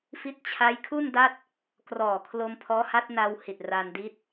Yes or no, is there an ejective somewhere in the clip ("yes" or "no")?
no